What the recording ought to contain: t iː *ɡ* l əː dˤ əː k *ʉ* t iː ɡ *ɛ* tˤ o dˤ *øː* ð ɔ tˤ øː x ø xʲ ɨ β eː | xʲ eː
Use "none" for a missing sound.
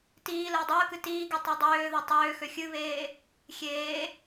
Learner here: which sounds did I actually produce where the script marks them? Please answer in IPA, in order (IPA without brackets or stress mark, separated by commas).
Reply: none, ɨ, ɨ, øː